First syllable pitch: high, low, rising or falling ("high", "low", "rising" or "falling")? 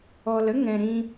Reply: low